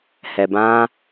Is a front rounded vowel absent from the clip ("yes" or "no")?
yes